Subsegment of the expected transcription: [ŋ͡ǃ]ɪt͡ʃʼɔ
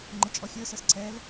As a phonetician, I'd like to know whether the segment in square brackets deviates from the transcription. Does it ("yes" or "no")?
no